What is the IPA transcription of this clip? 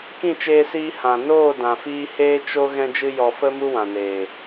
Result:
kĩ˦˨t͡ʃeː˧siː˧ hã˨ noː˦˨dã˨fiː˧ heː˧ t͡ʃo˧ ɣɛ̃˧d͡ʒɨ˧jɔ˨ fə˧ mu˦wã˨neː˨

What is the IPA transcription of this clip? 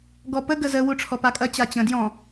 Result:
ɡɔpə ɡəzə wuʈ͡ʂʰɔpakʼɐ t͡ɕat͡ɕə̃ djɔ̃

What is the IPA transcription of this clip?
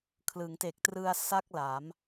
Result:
kʰlɯ˩˦ŋte˨˩k̚trɯ˧a̯ sa˥˩k̚la˩˦m

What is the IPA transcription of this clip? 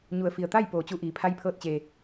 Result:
ɲu˩ə̯fi˩ə̯t̪a˥˨j poː˩˧t͡ɕu˧ʔiː˩ pʰa˧˥jpʰɤː˧t̚ t͡ɕeː˩

